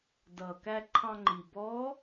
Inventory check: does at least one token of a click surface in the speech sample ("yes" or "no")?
yes